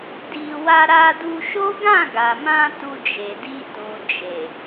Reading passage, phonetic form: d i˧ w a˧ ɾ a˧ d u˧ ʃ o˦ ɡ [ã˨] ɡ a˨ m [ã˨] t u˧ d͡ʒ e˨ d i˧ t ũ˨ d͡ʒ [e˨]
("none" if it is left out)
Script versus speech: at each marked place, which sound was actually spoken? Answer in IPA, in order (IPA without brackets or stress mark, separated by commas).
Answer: ã˦˨, ã˧, e˨